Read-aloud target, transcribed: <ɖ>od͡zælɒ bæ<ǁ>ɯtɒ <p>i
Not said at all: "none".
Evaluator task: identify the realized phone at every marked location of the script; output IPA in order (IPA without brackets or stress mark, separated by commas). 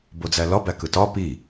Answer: b, k, p